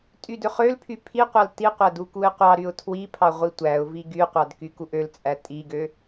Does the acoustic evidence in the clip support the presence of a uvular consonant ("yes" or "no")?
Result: yes